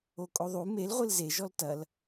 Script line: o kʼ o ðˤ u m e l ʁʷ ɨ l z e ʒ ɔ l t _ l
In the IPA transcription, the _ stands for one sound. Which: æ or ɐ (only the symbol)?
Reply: ɐ